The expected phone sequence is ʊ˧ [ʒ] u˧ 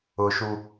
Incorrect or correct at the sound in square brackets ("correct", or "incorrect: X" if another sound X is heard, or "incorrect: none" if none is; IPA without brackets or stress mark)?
incorrect: ʃ